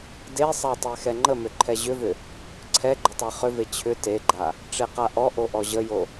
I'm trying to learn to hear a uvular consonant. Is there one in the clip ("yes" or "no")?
yes